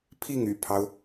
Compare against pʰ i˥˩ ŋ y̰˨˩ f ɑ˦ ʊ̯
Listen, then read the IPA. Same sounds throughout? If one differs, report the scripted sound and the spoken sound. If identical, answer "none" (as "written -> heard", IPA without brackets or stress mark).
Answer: f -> pʰ